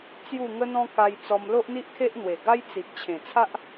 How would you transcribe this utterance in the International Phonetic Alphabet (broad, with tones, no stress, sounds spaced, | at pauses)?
t͡s j u˥˧ ŋ ə˦ n̪ ɔ̃˦ k a˧ j t͡s ɔ˧ m l o˦ ʔ n̪ i˦ ʔ kʰ e˦ ʔ n̪ w e˨˩ ɡ a˦ j t͡s i˨ p̚ t͡ɕʰ ẽ˨˩ t͡sʰ a˦ ʔ